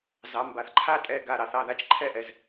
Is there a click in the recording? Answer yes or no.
yes